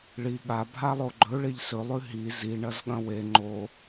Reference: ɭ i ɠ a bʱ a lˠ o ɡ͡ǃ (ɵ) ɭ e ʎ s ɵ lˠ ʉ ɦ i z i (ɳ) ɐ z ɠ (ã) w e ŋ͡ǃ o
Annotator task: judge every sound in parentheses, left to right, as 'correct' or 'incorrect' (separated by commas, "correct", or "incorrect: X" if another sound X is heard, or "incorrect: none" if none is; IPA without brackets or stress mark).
correct, correct, incorrect: ɐ̃